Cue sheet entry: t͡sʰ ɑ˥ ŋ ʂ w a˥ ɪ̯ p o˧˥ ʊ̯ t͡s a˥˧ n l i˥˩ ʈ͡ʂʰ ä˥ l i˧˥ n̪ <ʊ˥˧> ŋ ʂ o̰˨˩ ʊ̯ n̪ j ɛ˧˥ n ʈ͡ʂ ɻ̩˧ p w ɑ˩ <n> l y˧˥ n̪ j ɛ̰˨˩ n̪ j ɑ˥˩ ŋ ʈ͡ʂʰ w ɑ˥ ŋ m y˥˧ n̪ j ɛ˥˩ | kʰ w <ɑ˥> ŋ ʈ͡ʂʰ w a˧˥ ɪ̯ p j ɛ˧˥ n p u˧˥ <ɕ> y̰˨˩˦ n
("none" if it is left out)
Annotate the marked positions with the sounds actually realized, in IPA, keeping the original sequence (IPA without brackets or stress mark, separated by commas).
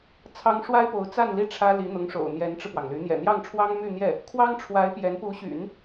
ʊ˧˥, ŋ, ɑ˥, ɕ